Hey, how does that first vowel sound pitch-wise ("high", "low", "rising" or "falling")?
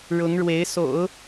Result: rising